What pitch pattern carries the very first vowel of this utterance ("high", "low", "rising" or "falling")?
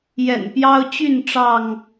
low